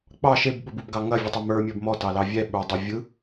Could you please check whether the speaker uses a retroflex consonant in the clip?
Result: no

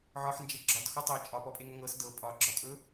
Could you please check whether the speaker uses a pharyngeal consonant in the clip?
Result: yes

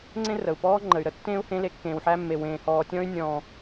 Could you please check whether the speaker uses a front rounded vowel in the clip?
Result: yes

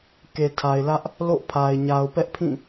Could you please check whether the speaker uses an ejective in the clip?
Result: no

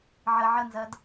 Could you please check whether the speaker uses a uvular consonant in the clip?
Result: no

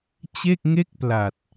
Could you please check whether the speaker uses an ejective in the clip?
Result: no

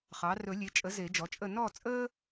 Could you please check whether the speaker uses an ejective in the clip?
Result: yes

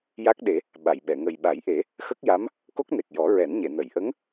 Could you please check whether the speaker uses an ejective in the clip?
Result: no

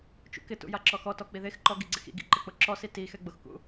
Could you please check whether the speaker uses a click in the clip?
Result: yes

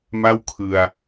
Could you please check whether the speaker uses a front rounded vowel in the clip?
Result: no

